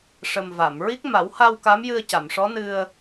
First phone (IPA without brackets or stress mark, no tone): ʂ